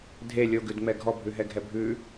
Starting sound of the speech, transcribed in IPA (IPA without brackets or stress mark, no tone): dʱ